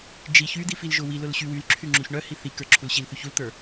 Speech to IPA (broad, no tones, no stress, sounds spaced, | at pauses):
d͡ʒ i ç y d̪ i f i l ʒ ʊ w i l ʊ l ɕ y w y l ǁʰ y ŋ͡ǁ u ç ɳ œ h i θ i k ə˞ ǁʰ u l ɕ i l θ y ç u l t̪ ə˞